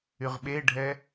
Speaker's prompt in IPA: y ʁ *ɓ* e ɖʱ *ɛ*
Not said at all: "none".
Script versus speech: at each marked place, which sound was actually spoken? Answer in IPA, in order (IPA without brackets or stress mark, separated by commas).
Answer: ɓ, ɛ